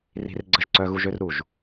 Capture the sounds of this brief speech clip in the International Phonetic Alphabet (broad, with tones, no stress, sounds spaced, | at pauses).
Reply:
r i̤˧ r ɡ͡ǀ ə˧ ʒ ǀ œ˧ ɣ u˧ ʒ ø˧ r ɾ u˧˩ ʒ